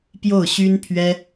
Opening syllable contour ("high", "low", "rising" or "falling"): falling